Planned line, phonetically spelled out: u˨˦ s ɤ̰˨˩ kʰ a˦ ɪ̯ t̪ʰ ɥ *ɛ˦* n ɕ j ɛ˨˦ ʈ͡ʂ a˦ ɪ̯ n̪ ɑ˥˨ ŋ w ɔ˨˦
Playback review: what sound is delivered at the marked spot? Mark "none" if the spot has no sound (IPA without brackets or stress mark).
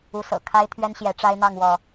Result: ɛ˦